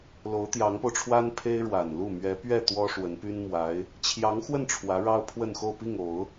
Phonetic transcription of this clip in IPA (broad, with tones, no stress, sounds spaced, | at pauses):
l o˧˥ ʊ̯ t̪ j ɑ˧˥ ŋ p o˧ ʊ̯ ʈ͡ʂʰ w a˥ n pʰ e˥ ɪ̯ ɻ w a˨˩ n l u˥˩ m ɥ ɛ˧˥ p ɥ ɛ˥˩ t̪ w ɔ˥ ʂ w ə˧˥ n p y˥ n m w a˧˥ ɪ̯ | t͡ɕʰ j ɑ˧˥ ŋ x w ə˥˩ n ʈ͡ʂʰ w ä˧˥ ɻ ɑ˥ ʊ̯ pʰ w ə˥˧ n x o˥˧ ʊ̯ p i˥˩ ŋ o˨˩˦ ʊ̯